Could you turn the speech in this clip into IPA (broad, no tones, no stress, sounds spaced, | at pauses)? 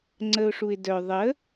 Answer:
ŋ͡ǀ ə ʊ̯ ʂ u ɪ̯ d œ ðˤ ə